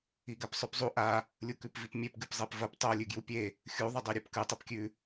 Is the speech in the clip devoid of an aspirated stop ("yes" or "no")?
yes